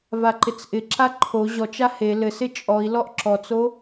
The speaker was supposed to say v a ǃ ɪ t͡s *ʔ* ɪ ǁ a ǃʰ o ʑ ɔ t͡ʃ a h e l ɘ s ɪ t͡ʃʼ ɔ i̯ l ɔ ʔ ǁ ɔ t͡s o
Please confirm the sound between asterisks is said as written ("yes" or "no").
yes